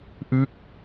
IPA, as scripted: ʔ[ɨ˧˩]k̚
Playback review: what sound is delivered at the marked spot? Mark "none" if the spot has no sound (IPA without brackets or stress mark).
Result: ɨ˦˥